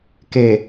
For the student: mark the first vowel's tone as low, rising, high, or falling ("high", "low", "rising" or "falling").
low